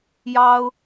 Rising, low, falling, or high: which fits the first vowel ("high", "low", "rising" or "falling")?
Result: high